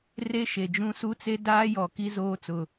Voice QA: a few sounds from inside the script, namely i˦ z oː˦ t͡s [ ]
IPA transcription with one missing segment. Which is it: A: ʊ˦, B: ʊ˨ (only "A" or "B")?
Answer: B